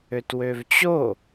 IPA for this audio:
ø t w ø v t͡ɕ o

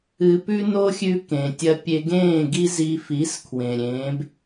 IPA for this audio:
ɨ˨ p ʉ˦ n o˦ xʲ ʉ˦ k ẽ˨ tʲ ɐ˦ pʲ e˦ ɡ ẽː˦˨ ɡ i˦ z i˧ f i˨˦ s kʰ w ẽ˨ ɾʲ ẽː˨˦ b

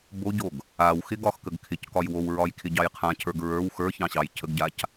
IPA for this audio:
b o ɟ o ɡ | a w x ɪ ɡ ɒ x k ə ɡ kʰ ɪ c k ɒ j w o w ɹ ɒ j kʰ ɪ ɟ ɑ j qʰ ã cʰ ə˞ ɡ ɹ ə˞ w x ə˞ ç ɑ̃ ɕ ɑ j cʰ ə ɡ ɟ a c

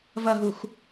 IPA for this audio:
v ɐ ɦ u x

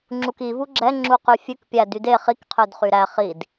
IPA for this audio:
ŋ͡ǁ u k i v u ɡ͡ǁ ɛ ŋ͡ǁ u q y fʲ ʉ k pʲ æ d y d e χ i k qʰ ø d χ y ɾ æ χ i d

